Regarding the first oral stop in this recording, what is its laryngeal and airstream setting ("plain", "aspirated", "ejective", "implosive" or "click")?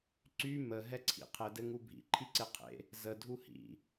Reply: click